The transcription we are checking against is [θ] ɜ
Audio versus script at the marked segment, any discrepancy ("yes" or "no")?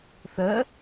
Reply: no